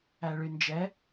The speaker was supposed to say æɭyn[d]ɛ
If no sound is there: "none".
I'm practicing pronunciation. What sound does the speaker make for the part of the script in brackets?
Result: d͡ʒ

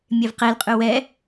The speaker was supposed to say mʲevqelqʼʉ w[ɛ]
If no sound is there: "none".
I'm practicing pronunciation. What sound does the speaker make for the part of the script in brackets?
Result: ɛ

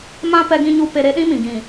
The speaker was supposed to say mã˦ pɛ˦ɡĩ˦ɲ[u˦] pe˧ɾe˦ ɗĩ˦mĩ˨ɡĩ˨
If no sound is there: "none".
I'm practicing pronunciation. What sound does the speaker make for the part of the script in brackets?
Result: u˦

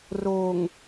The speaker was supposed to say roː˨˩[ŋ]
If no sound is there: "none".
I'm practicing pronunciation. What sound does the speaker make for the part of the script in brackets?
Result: ŋ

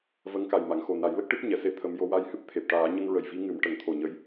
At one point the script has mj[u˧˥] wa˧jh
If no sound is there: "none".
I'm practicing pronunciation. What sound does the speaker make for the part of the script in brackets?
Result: o˧˥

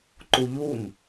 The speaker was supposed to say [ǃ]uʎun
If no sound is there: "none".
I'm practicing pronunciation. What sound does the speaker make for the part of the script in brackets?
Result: ǃ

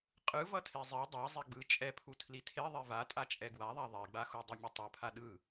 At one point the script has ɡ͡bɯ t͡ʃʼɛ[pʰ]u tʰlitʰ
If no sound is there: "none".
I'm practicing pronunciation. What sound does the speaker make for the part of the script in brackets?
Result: pʰ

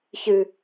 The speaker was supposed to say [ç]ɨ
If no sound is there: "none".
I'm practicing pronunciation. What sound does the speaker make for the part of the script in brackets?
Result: ç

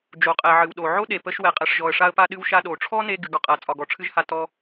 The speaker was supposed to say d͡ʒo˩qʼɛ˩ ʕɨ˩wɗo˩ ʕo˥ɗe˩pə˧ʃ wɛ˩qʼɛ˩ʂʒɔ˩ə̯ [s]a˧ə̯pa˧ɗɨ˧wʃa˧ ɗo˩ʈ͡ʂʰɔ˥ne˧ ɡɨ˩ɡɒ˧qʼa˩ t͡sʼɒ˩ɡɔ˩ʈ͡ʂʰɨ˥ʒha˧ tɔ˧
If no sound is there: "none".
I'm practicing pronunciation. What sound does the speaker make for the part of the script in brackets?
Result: ʂ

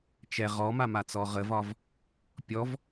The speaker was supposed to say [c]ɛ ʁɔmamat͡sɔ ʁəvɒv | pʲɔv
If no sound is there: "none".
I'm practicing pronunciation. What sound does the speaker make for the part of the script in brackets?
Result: t͡ʃ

